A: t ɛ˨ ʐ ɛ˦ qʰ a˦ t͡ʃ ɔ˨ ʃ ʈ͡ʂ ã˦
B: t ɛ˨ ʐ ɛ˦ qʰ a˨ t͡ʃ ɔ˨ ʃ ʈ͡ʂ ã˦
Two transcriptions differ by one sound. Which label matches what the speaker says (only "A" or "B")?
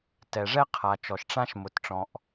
B